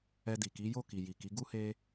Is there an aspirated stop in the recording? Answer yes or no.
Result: no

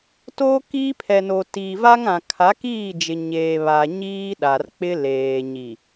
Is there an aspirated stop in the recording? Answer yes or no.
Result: yes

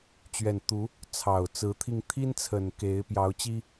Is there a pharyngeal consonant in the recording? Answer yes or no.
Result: no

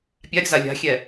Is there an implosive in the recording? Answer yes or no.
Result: no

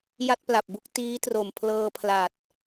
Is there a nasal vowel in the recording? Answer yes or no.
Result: no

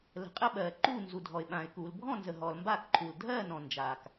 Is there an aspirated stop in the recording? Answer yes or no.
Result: yes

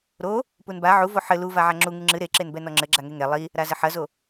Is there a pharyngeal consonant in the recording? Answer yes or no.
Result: yes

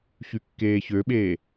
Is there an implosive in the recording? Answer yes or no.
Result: yes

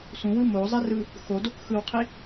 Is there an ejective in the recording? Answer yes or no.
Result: no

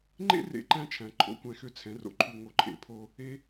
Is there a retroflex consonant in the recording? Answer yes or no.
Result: no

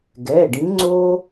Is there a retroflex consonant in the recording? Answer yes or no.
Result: yes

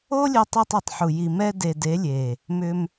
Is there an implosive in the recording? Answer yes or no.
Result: no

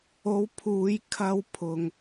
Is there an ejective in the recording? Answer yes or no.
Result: no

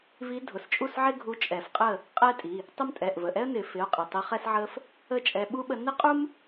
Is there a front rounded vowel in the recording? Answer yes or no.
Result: no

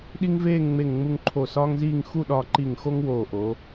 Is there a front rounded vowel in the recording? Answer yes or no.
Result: no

